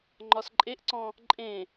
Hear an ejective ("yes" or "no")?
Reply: yes